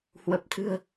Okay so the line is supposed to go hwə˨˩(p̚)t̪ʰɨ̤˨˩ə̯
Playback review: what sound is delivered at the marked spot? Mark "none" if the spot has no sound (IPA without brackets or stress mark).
p̚